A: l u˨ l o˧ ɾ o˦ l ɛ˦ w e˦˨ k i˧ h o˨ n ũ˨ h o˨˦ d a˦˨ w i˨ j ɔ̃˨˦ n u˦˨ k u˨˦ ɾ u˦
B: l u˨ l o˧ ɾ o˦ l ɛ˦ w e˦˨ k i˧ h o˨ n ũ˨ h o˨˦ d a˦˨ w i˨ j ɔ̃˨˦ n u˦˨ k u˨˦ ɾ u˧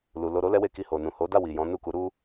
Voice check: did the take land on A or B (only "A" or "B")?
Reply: A